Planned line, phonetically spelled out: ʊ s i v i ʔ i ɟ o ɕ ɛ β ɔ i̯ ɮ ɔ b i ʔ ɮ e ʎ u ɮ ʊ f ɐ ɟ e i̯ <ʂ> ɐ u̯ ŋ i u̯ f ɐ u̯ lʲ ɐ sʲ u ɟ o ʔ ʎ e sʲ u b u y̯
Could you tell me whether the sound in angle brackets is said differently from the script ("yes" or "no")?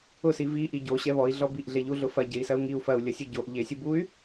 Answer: yes